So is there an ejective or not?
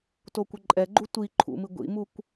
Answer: yes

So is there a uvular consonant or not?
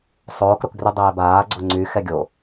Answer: no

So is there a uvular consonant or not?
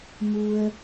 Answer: no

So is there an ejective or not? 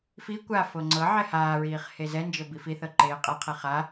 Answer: yes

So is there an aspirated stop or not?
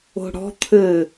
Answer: yes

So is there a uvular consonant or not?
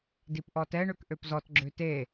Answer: no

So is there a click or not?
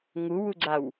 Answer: yes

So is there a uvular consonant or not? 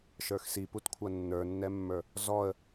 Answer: no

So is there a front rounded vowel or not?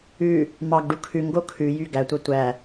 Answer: yes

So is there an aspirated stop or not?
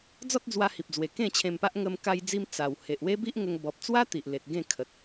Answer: yes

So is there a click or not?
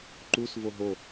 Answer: yes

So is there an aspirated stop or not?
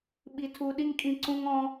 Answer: yes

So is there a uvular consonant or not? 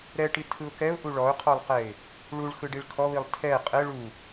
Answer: yes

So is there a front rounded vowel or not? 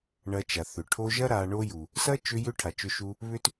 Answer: yes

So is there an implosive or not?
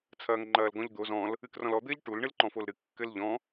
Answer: no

